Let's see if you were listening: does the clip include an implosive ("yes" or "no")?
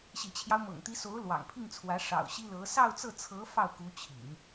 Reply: no